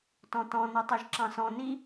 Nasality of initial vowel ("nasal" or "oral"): nasal